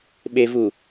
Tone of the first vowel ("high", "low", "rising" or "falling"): low